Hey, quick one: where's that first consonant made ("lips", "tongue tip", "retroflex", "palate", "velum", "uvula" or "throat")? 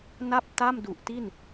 tongue tip